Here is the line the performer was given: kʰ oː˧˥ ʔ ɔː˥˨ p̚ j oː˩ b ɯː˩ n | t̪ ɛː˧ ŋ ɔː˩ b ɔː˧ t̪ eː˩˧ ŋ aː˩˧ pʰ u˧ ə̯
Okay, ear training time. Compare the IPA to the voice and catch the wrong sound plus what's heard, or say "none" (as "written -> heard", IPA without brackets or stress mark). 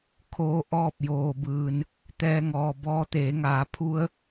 none